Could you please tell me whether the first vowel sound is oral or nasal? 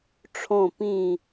nasal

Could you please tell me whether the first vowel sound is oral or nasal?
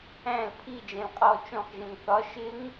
nasal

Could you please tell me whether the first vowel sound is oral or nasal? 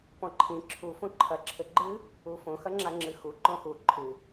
nasal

